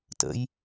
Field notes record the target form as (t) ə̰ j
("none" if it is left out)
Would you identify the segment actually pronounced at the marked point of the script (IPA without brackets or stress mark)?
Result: t